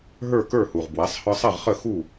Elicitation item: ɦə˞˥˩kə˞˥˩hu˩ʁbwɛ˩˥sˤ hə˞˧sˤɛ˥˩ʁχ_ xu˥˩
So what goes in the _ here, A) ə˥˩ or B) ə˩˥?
A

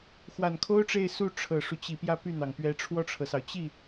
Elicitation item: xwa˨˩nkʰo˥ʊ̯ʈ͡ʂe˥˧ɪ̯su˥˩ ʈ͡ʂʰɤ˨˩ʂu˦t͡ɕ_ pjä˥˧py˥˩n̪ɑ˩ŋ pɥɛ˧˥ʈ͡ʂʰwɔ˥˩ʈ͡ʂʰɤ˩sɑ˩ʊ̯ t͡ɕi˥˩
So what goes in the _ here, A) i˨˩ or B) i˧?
A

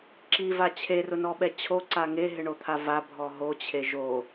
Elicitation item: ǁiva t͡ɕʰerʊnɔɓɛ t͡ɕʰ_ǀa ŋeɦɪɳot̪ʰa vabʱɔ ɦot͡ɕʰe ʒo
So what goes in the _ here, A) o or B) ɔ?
A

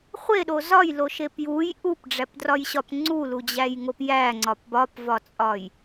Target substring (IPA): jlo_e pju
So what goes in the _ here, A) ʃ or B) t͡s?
A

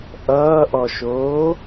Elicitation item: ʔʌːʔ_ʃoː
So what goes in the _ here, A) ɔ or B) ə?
A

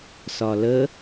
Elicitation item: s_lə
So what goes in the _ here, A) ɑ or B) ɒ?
B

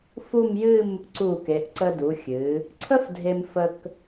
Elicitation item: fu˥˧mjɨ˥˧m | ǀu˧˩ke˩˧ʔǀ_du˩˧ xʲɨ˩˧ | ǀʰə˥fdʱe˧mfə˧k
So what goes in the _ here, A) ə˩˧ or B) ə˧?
B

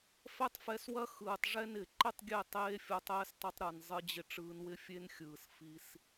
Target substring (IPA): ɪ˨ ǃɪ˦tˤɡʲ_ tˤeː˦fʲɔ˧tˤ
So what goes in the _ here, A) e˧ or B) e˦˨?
B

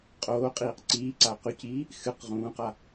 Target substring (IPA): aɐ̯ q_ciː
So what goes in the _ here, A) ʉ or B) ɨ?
A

